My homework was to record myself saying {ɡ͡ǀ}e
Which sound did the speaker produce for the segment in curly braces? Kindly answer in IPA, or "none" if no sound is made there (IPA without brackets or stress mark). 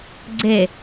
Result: ɡ͡ǀ